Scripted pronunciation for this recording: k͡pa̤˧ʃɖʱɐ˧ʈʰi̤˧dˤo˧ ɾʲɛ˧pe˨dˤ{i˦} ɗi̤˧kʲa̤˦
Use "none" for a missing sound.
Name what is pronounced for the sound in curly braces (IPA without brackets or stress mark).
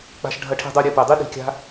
i˦